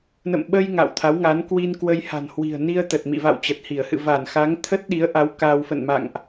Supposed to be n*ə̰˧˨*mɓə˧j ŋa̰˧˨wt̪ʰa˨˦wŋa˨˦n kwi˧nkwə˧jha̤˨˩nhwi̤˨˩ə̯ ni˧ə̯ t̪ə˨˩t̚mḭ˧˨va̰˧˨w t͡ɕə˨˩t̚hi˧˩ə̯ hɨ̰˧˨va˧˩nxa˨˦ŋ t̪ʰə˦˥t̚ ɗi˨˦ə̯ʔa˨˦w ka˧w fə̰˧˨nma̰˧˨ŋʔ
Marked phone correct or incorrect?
correct